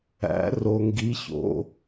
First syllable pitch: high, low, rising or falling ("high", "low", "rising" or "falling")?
rising